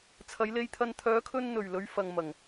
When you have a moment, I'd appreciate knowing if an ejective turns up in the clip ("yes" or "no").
no